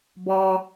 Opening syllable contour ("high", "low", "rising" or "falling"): low